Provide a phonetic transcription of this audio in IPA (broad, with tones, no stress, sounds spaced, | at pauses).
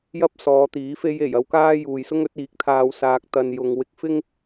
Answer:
j ɐ˥ p̚ s ɔː˨˧ t̪ iː˨˥ f e˧ j e˨˩ j ɐ˥ w k aː˥ j uː˨ j s ʊ˥ ŋ ɵ˨˥ t̚ iː˨˥ k̚ t̪ʰ aː˧ w s aː˧ k̚ t̪ ɐ˧ n j ʊ˧ ŋ w ɪ˧ k̚ f ɪ˥ ŋ